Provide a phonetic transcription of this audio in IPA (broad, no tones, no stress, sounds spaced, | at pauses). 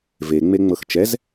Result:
v e ŋ͡m e ŋ͡m ɤ x t͡ʃ ɛ z